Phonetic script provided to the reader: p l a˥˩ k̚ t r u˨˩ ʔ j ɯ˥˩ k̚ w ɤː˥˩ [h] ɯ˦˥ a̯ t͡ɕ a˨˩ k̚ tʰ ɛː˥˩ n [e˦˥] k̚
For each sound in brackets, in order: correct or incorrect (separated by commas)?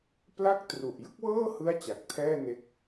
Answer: correct, correct